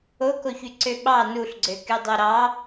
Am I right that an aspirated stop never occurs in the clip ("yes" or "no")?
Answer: yes